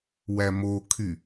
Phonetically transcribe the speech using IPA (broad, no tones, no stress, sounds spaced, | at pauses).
w æ m o kʰ y